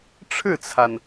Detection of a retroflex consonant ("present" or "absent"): present